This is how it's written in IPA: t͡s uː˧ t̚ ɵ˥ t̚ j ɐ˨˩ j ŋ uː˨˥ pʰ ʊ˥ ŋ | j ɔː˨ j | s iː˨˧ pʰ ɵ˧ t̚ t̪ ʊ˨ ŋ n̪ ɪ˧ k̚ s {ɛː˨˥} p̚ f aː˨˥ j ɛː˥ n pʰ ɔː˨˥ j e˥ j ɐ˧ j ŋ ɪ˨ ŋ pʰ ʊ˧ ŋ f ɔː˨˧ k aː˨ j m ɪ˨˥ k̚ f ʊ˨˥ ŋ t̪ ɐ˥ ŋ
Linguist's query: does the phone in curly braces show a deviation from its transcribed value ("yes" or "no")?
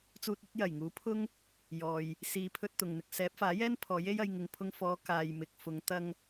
no